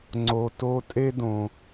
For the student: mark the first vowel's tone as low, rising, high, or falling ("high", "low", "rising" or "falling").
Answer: low